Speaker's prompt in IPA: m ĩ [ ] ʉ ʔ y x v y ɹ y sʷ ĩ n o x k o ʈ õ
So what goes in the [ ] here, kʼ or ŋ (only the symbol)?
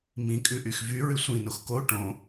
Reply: kʼ